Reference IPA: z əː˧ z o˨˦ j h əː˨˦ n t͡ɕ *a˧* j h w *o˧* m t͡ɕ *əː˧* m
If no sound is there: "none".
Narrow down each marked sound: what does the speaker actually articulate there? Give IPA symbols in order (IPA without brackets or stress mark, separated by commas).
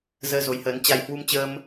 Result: a˧, u˧, əː˧